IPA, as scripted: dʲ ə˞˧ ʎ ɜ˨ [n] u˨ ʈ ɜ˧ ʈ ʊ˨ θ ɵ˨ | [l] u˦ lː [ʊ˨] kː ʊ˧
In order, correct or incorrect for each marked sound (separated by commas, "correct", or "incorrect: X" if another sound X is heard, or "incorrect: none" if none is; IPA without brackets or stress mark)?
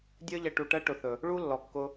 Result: incorrect: ʈ, incorrect: ɭ, incorrect: ɔ˨